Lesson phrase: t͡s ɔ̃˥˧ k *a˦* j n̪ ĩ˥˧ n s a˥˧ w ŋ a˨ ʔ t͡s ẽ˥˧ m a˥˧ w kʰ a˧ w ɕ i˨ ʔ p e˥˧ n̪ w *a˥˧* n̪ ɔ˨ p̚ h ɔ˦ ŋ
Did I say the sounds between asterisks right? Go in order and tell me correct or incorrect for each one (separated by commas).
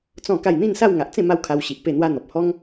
incorrect, incorrect